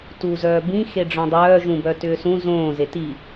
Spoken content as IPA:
t u z œː b ĩ x e ɖ͡ʐ œ̃ dˤ œː ʒ ũ b œ t ʏː s ũ z õː z e t i

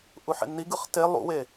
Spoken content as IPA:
ʔ u ħ ḛ nː i ɡ ɯ χ t e lˠ ṵ w e

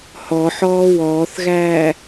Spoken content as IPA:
h ɔ ħ ɔː w ɔː θ ɣ æː

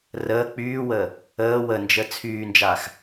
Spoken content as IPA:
r əː k͡p yː w əː | əː w ə n d͡ʒ ə t͡sʰ yː n d͡ʒ aː x

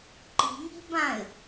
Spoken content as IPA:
ǃ i̤ ŋ i̤ b ã ɪ̯

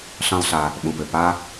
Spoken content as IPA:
ɬ ɑ̃˦ lˠ ɬ a˧ | ɓ ũ˨ p ʏ˨ p a˦

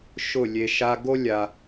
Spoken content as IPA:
ʃ ʊ˦˨ lʲ e˧ ʃ a˧ ɡ o˦ lʲ a˧

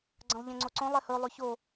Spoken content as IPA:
ɡ͡ǀ ɐ̃ lˠ ʎ ẽ ŋ͡ǀ o ǀ õ lˠ e h ɵ lˠ ʉ ç o

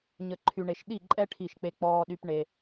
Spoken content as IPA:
ɲ ə˨ ǃʰ y˨ ɳ e˨ ʃ ɗ i˦˨ ǃʼ ɛ˦ ʈʰ i˦˨ ʃ k͡p e˦ k͡p ɔː˦ ɗ y˦ p ɳ e˦

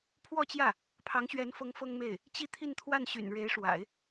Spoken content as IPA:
pʰ w ɔ˥˧ t͡ɕ j ä˥˩ | pʰ ɑ˧˥ ŋ ɕ ɥ ɛ˧˥ n f ɤ˧˥ ŋ f ɤ˥ ŋ m e˥˩ ɪ̯ | t͡ɕ i˥˧ t̪ʰ i˥˧ n t̪ʰ w a˥˩ n ɕ y̰˨˩ n ɻ e˧˥ ɪ̯ ʂ w a̰˨˩˦ ɪ̯

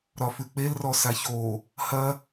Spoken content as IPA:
ɾ ɒ f ʉ k͡p e l r ɔ s a ç o | h ɐ

